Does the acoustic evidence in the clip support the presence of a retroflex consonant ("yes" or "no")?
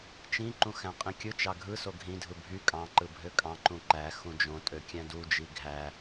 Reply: no